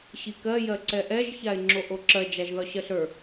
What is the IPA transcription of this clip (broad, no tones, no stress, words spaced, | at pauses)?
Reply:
ɕikɜ jɜǀɛʔɛʒçae̯ ŋ͡ǁoʔoǁɜ d͡ʒaʒðɒɕɜɬə˞